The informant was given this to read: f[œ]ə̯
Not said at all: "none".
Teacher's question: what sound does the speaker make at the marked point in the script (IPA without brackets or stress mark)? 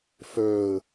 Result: œ